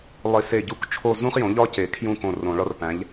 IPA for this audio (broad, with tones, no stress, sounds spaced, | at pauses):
lˠ i˨˩˦ s e˧˩ ɟ u˥˩ k t͡ʃʰ o˥˧ z ũ˥ χ j õ˩˥ ʎ ɒ˥ c e˨˩˦ kʰ j ũ˥˧ k õ˧˩ r õ˨˩˦ ɭ ɒ˥ r p æ̃˩˥ ʎ